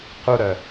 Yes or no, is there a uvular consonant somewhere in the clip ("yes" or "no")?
yes